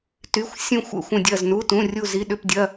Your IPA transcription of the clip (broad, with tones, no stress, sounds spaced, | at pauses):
t y˩˧˩ xʷ sʲ ũ˧˩ xʷ ə̰˧˩ xʷ ə̃˧˩ dʲ ɐ˧˩ z n u˩˧˩ t ũ˩˧˩ rʲ u˧˩ z i˩˧˩ ɗ ʏ˧˩ p dʲ ɐ˩˧˩